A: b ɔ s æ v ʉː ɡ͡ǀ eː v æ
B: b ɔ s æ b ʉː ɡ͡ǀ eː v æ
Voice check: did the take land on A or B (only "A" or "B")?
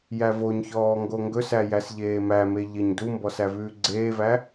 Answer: A